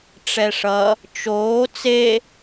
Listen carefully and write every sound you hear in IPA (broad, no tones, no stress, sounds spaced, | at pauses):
ʈ͡ʂ ɛ ʂ ʌ | t͡ʃ oː t͡s e